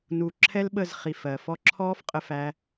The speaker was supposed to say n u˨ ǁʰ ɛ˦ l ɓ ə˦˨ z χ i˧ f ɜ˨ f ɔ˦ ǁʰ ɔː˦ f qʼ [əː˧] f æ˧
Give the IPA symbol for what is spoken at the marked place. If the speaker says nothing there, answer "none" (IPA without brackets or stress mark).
ə˧